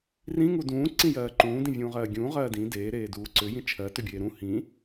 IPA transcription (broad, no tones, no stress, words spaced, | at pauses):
rĩŋu dũː ǀĩjɜːǃũː dĩvʲũːʁɜːɡʲũː ʁɜːdĩ deː ɾeːduːǀʏ jĩt͡ʃʰɜ tʏbʲeːɾũ hĩ